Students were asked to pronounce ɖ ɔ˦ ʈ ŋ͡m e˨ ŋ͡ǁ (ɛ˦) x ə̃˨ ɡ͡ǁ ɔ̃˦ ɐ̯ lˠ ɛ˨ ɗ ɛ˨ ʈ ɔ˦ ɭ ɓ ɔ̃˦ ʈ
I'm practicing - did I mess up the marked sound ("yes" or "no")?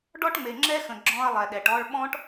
no